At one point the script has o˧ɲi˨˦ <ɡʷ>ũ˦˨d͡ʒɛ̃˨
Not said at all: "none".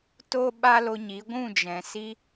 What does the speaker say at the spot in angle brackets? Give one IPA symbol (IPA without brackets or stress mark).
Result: ɡʷ